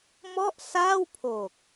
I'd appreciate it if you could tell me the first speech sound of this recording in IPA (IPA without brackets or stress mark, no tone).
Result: m